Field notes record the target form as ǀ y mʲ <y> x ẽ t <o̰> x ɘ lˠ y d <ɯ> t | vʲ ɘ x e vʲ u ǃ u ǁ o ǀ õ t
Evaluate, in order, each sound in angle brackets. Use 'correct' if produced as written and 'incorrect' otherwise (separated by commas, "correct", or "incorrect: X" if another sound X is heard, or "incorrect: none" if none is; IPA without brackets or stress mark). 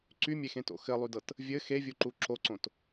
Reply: incorrect: e, correct, incorrect: ɤ